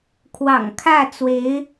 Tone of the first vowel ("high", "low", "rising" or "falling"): low